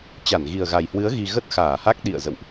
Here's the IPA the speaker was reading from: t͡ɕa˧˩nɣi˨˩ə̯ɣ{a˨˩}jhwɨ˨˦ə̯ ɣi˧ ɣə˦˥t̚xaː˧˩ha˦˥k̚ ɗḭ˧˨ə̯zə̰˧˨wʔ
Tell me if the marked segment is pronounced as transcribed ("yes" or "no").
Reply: yes